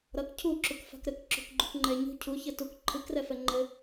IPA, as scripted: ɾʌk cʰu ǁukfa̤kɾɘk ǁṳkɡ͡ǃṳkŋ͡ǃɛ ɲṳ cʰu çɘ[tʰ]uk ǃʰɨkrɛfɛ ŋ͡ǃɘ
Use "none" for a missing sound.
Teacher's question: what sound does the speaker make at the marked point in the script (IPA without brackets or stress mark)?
t